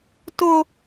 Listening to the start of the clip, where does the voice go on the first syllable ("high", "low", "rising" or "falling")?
high